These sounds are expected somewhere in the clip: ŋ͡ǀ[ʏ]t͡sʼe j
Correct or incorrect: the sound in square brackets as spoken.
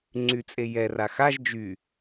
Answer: incorrect: y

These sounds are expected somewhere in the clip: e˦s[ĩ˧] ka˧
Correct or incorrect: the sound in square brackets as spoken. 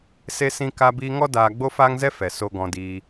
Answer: incorrect: ĩ˦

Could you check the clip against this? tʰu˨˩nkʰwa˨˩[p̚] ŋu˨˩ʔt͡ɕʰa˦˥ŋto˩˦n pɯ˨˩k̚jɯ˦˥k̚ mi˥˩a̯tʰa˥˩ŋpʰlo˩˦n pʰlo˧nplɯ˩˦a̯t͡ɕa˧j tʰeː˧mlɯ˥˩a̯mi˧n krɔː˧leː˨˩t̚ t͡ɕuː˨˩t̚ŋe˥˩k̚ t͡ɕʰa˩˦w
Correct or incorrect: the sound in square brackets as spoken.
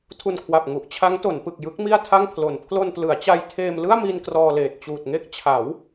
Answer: correct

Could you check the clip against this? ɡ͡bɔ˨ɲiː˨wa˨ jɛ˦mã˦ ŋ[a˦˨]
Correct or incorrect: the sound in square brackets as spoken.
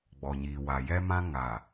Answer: incorrect: a˨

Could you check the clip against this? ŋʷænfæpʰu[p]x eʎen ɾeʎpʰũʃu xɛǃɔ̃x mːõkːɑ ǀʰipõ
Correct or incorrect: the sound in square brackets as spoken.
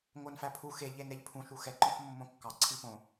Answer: incorrect: none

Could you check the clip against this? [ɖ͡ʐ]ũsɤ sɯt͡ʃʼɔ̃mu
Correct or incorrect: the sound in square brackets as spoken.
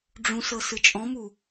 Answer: correct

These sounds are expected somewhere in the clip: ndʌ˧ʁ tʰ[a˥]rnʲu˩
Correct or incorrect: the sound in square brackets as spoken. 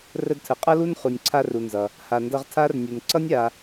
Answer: correct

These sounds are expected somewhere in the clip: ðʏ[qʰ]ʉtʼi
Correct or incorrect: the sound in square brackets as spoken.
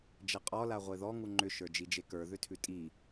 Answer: incorrect: tʰ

